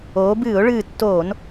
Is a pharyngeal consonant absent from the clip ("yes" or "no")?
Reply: yes